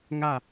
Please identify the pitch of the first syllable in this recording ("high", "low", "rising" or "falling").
falling